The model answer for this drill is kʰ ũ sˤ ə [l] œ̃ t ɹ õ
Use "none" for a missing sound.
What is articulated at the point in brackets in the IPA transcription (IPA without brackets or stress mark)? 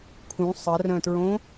r